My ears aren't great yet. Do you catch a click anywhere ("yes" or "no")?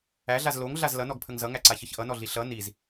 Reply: yes